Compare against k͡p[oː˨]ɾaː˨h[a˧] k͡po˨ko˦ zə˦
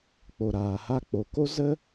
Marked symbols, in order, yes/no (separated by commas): no, yes